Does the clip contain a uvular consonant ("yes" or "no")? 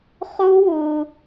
yes